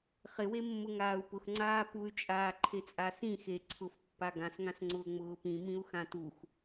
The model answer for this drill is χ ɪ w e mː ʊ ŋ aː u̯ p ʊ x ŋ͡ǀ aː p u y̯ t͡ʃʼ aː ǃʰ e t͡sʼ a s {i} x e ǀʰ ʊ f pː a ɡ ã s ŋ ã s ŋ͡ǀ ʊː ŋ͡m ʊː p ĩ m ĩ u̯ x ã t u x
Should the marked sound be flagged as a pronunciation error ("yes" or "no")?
yes